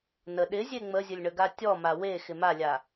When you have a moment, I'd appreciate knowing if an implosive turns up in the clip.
yes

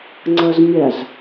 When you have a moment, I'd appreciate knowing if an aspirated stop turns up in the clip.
no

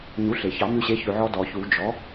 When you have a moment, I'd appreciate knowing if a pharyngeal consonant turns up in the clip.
yes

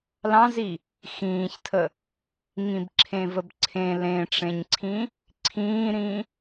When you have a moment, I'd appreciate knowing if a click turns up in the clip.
yes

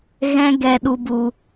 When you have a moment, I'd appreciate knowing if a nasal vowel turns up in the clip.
yes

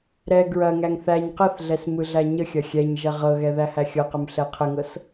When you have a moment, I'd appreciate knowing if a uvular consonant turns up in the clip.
yes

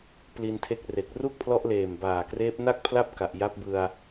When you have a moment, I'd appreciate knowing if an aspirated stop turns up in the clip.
yes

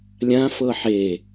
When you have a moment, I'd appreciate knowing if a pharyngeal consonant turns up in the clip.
yes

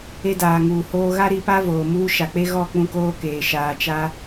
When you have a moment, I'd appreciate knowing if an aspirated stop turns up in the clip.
no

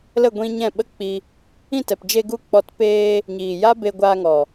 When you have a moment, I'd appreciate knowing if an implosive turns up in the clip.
yes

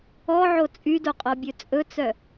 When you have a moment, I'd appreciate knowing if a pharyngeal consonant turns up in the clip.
yes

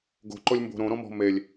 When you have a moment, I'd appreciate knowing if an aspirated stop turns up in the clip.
no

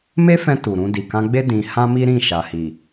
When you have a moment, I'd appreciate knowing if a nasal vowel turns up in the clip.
yes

